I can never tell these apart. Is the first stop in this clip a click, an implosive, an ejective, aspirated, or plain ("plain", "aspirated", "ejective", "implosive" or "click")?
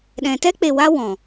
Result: implosive